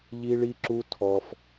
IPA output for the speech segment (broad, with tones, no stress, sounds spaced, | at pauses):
ʎ i˦ ɭ i˦ ǁ u˦ tʰ ɔ˧ f